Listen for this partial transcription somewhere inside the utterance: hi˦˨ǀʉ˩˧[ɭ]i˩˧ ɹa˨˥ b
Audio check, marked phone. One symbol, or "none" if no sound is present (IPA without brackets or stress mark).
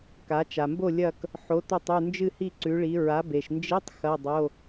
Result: ɭ